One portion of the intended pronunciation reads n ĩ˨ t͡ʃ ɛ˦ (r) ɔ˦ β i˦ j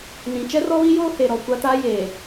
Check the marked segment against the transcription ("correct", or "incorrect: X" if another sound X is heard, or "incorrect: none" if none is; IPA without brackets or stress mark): correct